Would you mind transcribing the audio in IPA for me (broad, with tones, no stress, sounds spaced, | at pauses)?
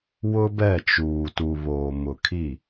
w ʊ˦ b ɛ˦˨ t͡ʃ uː˨ t u˨ β oː˨ m ʊ˨ kʰ i˦˨